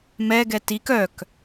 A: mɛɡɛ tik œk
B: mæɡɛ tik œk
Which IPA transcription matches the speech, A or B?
A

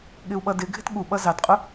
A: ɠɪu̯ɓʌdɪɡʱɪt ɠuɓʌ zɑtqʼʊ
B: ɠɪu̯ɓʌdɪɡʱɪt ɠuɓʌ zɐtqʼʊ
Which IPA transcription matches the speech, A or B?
A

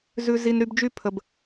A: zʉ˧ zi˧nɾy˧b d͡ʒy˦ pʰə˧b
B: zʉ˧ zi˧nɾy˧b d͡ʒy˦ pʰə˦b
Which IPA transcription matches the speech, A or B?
A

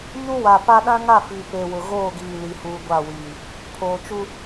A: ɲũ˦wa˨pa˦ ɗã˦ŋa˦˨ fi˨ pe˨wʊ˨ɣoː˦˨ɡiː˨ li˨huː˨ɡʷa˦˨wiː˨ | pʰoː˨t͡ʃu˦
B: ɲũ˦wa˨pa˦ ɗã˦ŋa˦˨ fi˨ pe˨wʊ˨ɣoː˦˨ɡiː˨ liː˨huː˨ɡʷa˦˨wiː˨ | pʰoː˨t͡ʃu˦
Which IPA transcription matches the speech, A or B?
A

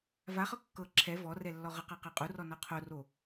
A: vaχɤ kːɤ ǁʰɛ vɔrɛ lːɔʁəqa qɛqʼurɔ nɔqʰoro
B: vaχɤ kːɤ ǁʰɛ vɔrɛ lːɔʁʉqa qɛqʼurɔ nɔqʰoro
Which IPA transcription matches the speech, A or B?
A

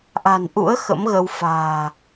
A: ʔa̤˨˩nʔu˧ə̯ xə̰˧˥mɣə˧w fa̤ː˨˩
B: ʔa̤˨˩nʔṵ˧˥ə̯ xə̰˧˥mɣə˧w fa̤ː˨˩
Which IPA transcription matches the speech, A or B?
B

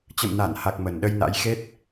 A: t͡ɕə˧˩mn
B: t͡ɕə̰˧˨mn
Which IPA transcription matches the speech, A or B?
B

